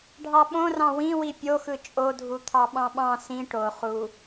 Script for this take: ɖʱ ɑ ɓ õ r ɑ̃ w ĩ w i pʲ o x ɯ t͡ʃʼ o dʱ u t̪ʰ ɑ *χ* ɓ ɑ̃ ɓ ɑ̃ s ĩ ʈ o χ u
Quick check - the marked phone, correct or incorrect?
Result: incorrect: none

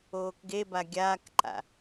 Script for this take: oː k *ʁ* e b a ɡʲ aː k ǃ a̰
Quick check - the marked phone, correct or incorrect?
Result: incorrect: ɡ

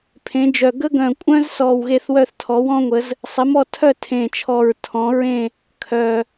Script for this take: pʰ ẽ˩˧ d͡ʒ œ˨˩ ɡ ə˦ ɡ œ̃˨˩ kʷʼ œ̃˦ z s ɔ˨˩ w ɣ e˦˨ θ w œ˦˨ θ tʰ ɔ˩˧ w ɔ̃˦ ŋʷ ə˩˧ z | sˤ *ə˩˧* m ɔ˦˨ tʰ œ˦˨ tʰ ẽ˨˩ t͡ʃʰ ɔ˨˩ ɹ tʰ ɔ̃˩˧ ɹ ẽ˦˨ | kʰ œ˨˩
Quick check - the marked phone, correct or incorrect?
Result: correct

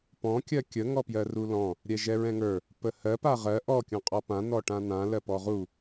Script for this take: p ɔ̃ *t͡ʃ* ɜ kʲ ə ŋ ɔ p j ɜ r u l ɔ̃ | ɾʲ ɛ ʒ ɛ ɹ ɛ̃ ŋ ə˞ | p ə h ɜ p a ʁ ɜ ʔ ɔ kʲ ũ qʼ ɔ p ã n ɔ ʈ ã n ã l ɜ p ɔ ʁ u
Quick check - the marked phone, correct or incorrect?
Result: incorrect: kʲ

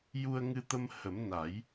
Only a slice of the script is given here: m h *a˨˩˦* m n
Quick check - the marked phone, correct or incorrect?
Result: incorrect: ə˨˩˦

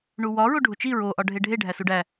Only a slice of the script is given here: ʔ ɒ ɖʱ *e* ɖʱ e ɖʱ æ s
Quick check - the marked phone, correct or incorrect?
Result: correct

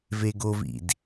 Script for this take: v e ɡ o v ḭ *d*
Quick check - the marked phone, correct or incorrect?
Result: correct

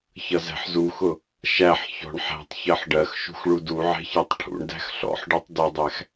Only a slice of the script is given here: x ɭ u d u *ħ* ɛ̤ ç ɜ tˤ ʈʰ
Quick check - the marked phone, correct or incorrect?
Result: incorrect: ʕ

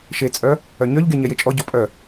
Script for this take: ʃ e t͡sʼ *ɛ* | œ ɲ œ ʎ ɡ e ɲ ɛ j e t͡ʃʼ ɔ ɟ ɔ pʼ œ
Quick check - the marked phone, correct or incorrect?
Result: incorrect: œ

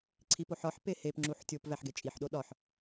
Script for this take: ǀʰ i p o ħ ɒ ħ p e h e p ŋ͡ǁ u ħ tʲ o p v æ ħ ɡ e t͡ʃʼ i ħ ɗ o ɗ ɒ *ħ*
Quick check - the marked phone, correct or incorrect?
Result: correct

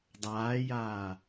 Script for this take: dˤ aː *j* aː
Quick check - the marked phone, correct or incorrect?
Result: correct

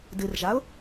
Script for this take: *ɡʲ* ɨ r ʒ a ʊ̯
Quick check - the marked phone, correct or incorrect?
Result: incorrect: d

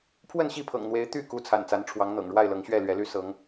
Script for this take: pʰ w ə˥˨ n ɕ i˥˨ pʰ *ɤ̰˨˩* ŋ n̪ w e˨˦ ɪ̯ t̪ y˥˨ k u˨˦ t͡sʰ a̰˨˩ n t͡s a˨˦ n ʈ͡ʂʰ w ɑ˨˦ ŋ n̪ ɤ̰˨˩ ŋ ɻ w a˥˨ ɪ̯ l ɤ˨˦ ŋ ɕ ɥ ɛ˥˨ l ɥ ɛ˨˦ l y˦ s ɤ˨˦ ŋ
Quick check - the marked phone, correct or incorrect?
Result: correct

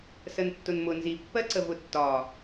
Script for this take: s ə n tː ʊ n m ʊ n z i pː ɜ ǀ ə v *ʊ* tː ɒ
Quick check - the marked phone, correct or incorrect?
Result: correct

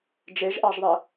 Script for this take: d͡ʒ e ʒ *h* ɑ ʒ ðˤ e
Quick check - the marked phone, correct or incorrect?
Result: incorrect: ʔ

